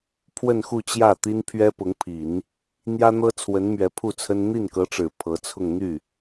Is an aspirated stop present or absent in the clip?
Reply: present